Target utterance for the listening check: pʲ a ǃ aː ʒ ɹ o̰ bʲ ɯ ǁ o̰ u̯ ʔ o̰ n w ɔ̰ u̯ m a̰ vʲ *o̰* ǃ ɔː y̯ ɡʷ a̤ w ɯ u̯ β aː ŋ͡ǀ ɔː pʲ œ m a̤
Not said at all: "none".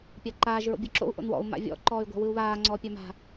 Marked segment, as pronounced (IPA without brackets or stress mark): ɔ̰